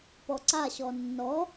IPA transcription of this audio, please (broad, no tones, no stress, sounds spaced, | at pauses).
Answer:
p ɔ ǀ a ɕ ɔ nː ɔ